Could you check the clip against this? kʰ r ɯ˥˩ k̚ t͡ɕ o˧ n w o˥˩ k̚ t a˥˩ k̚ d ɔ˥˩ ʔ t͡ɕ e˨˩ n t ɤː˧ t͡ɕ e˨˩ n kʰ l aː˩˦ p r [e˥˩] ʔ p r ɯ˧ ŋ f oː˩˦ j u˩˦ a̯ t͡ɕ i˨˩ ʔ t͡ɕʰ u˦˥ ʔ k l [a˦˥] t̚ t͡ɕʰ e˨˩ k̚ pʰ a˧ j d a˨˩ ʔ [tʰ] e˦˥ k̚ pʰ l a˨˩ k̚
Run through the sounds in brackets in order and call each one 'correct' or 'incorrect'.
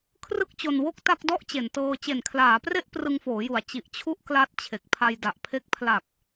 correct, correct, incorrect

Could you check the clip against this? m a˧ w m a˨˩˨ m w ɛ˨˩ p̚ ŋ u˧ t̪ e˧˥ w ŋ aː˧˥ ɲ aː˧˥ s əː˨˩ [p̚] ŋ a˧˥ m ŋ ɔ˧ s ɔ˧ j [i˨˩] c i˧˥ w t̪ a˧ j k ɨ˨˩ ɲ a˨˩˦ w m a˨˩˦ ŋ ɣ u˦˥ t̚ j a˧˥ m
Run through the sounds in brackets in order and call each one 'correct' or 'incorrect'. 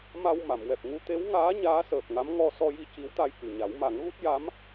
correct, incorrect

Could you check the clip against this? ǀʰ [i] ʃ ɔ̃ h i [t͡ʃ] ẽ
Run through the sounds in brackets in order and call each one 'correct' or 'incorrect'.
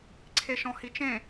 incorrect, correct

